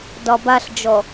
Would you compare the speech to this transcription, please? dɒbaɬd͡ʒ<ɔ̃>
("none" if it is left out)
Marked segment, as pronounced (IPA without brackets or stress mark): ɔ